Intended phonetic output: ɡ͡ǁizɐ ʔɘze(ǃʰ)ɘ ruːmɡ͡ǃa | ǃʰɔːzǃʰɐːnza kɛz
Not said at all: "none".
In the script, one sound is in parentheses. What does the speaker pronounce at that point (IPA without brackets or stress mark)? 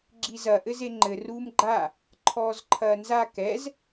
ŋ͡ǃ